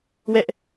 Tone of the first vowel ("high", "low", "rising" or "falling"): high